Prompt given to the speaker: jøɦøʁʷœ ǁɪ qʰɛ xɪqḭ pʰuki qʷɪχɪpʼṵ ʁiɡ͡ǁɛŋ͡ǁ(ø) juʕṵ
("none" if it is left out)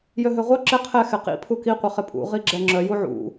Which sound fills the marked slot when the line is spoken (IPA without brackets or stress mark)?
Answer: œ